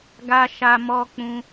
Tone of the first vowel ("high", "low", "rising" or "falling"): high